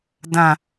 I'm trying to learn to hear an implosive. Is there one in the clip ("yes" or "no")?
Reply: no